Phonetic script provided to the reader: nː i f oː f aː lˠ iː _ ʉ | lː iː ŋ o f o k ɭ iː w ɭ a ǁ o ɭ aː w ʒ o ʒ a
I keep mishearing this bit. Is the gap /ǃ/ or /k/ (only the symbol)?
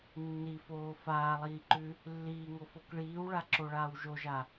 ǃ